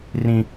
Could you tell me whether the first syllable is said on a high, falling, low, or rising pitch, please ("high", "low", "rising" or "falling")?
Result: high